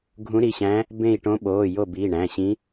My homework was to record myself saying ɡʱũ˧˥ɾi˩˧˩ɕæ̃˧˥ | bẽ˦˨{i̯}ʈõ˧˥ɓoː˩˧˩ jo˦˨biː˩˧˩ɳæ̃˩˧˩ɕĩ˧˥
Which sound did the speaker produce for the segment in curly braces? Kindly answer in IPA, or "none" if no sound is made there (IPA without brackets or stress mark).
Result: i̯